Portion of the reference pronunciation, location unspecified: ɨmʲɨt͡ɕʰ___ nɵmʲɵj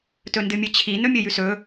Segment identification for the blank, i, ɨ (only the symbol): i